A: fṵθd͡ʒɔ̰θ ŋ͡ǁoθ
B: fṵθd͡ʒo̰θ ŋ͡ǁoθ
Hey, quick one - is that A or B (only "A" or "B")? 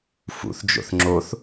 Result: B